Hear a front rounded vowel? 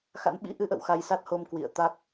no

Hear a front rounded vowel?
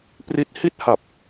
no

